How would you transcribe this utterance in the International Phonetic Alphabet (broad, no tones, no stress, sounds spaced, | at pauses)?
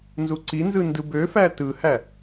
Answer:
n z u ǀ i n z ɯ n d ɯ b ø f æ t ɯ h æ